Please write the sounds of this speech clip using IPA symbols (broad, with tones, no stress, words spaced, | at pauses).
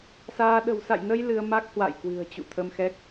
saː˧ ɗə̤˨˩wsa̰˧˨jnə˧j lɨ˧ə̯ ma˦˥k̚hwa̰˧˨j kwɨ̤˨˩ə̯t͡ɕṵ˧˨t̪ʰə˧mxɛ˦˥k̚